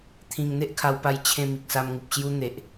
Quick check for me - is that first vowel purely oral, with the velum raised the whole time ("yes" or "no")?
no